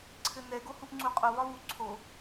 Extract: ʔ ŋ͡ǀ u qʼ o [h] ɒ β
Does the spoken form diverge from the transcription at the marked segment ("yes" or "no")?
yes